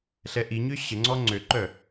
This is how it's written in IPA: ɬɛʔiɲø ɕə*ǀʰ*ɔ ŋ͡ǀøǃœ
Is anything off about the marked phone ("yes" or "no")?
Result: yes